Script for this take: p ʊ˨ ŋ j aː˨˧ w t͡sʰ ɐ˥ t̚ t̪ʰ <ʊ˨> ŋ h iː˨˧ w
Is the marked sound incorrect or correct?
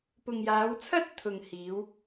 correct